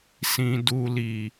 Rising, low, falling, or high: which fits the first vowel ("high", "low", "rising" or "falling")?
low